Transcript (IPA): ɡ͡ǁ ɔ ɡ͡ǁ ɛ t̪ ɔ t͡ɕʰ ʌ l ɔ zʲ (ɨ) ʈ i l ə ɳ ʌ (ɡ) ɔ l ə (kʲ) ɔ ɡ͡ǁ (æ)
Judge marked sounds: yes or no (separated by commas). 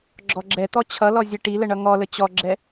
no, no, no, no